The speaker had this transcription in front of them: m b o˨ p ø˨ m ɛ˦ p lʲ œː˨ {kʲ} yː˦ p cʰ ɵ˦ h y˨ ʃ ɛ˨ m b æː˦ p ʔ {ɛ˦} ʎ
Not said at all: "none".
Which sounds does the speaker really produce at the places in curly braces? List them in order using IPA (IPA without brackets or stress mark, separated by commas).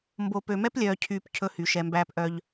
cʰ, œ˦